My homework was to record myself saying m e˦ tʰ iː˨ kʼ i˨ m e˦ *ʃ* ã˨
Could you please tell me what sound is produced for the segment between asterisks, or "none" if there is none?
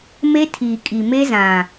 z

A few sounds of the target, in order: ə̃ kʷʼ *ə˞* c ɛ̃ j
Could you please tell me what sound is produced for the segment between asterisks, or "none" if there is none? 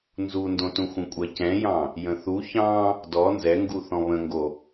ɜ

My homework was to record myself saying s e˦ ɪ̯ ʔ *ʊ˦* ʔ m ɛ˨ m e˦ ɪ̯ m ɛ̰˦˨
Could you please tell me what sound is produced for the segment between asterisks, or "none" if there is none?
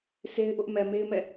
ʊ˦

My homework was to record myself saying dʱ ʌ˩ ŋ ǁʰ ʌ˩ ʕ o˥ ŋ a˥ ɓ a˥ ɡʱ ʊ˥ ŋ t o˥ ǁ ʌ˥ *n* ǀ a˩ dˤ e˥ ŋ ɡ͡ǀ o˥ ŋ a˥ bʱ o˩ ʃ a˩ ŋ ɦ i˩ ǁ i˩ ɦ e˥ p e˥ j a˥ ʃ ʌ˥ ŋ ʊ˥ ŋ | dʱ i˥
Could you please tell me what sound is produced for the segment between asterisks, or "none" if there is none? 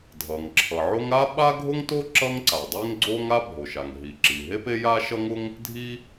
ŋ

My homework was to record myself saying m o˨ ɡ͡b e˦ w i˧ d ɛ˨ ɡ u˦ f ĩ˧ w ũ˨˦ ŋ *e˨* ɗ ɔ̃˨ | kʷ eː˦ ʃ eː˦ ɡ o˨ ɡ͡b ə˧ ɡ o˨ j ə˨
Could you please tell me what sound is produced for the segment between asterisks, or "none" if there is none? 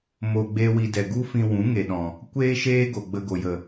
e˨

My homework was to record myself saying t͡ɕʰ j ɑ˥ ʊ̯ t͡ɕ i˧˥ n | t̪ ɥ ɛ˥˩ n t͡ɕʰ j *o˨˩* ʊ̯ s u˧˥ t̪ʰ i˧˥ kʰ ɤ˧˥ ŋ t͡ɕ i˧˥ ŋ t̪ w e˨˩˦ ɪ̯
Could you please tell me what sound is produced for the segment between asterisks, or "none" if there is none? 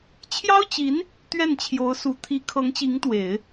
o˧˥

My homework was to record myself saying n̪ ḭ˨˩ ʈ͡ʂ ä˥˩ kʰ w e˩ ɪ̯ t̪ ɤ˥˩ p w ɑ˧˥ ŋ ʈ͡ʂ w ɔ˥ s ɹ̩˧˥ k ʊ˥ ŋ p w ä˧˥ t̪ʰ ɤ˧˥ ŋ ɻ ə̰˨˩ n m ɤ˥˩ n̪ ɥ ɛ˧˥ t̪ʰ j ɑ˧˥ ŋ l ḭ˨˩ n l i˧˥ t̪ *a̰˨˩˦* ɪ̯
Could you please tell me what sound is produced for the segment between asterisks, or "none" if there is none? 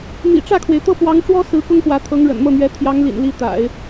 a̰˨˩˦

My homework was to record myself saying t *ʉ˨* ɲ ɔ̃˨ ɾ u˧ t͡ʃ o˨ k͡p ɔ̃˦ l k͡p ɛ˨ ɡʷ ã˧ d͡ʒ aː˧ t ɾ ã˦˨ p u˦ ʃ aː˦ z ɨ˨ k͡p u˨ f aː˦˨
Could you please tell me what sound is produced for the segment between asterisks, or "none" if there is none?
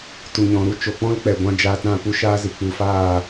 u˨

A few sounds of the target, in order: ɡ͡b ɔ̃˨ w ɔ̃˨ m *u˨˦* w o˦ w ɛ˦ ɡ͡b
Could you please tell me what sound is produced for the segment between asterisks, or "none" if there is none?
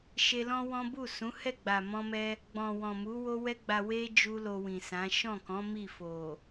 u˨˦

